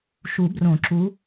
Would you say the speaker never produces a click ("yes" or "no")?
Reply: no